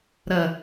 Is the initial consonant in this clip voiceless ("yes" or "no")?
no